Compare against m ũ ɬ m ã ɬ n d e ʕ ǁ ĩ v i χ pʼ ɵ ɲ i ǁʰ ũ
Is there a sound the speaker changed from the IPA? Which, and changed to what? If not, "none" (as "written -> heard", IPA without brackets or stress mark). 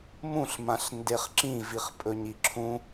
ʕ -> χ